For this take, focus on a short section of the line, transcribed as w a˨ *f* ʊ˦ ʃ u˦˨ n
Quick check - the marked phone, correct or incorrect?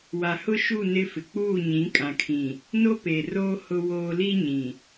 incorrect